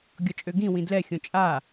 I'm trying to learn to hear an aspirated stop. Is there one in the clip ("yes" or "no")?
no